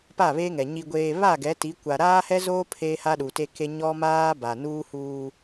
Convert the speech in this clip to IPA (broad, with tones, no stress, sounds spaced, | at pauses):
p a˦˨ β e˦ ŋ ɛ˨ ɲ i˨ ɡʷ eː˨ β a˦˨ ɡ ɛ˨˦ t i˨˦ kʷ a˨ ɾ aː˦ h ɛ˦ z oː˦ pʰ eː˦ h a˦ ɗ u˨ t e˦ k e˦ ɲ ɔ˦ m aː˦ b a˨ n uː˦ h uː˦